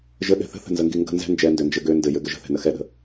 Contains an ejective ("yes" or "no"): no